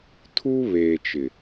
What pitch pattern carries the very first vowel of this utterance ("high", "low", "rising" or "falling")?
high